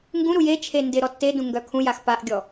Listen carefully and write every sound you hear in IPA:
ŋ ɡ ũ ɾ u j e t͡ʃʰ e n d ɪ ɾ ɔ tː e d ũ ŋ ɡ œ kʰ ũ j a x p a ʔ ɡʲ ɔ

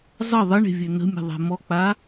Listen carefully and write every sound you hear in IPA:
zˤ ə ðˤ ə ɳ e̤ vʲ ø n ə̤ mʲ ə̤ ðˤ e̤ m ɔ k͡p a

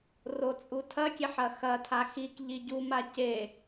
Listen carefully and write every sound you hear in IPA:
r o t͡sʼ u tʰ ɐ kʲ e ħ ɐ x ɐ tʰ a x i k ʎ i ɟ u m a c e

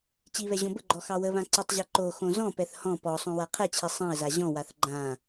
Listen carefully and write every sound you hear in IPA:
t͡ɕ i β ɛ ʑ õ b ə ɡ͡ǃ ɔ x ɑ w ə β ã ǀ ə tˤ ʑ ɛ ǃ o x õ z ɔ̃ p ɛ θ h ɔ̃ p ɔ sˤ õ w a qʰ ɛ t͡ɕʰ i sˤ ɛ̃ ə̯ z a ʑ ɔ̃ w a θ ɡ͡ǃ ã

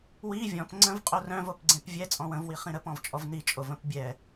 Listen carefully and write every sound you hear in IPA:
w i vʲ ɔ̃ p ŋ͡ǀ ə̃ v qʼ o r œ̃ v o p ɡ͡ǀ ẽ p vʲ ɛ t͡sʼ ɔ̃ w ə̃ v w i χ ĩ ɾ ə p ɔ̃ v t͡ʃʼ ɔ v n i t͡ʃʼ o v ə̃ p bʲ ɛ

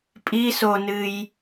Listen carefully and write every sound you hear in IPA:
pʼ i s o n ɨ j

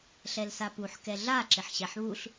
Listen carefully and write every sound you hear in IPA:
ɬ ɛ l s a p u ħ k ɛ ɮ a ǁ ɪ ħ ɕ ɛ ħ β u ɬ

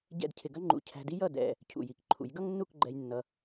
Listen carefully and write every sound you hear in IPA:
ɟ ɛ̰˥˧ d cʰ ɪ˧ ɡ ɐ˥ ŋ͡ǃ ṵ˧ cʰ æ̤˧ d i˥ j ʌ˥˧ d ɛ̰˧ | cʰ ṵ˧˩ j i˧˩ k ǃʰ ṵ˩˧ j ɡ ʌ˥ ŋ nː u˥˧ k ɡ͡ǃ ɛ˧ j nː ʌ˧

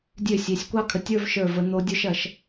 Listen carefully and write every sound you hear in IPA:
dʲ ø˦˨ sʲ ø˨ sʲ kʷ ɑ˦ kʰ ə˨ tʲ ə˞˦ v ʃ ə˞˦˨ v ə˧ n̪ o˦ dʲ ə˞˦ ʃ ɐ˧ ʃ

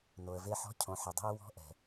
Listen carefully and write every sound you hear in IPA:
n o˨ ə̯ v e˧ ħ ɔ̤˧ cʰ õ˨ ħ e˨ dˤ e̤˧ ə̯ w ɔ̤˧ ʔ ɛ̤˨

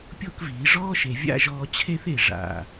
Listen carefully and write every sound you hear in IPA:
pʲ o˥˧ k v iː˩˧ ʐ ɔː˥ ʃ e˩˧ vʲ a̰˥˧ ʒ ɔː˧ t͡ɕʰ e˥ θ e˧˩ ʐ a̰˧˩

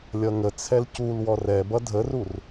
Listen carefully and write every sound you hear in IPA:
lʲ ʌ ŋ ə t͡sʰ ɛ l c u l w ɔ r ɛ b ʌ dʱ ə r u r

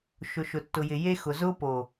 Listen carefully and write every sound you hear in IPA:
ʃ ʊ˨ ʃ ʊ˨ tː ʊ˨ j ɪ˨ j e˦ x ʊ˨ z ʊː˦ p o˨

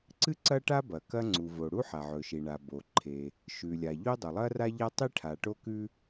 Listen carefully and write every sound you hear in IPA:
ǀ ɨ˥ ǀ ɐ˥ ʈ a˥ b ɐ˩ k ɐ˥ ŋ͡ǀ u˩ v o˩ ɽ u˥ ħ a˩ ʕ ɵ˩ ʃ i˩ ɳ a˩ b o˩ ǃʰ e˩ | ʃ ʉ˩ lʲ a˩ ʎ o˥ dˤ ɵ˩ lˠ ɐ˥ r a˥ ʎ a˥ tˤ i˥ ʈʰ a˩ ʈ o˥ k ʉ˥

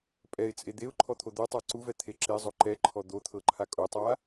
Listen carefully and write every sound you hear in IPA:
pʼ ɛ ɪ̯ t͡sʼ e d̪ e ʊ̯ ǃʰ ɔ t̪ʰ o d̪ o tˤ a ǀ u v ɛ t̪ʰ e ǁ e zˤ o ǃ ɛ ǃʰ ɔ d̪ o t̪ʰ ɤ ǃʰ a kʼ o tˤ a

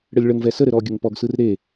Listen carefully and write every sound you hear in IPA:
ɽ ɘ lʲ ɭ ə ŋ v ɛ s ə ɾ ɘ ɾ ɔ ɡʲ ə ŋ p ɔ ɡ s ɯ r ɾ e

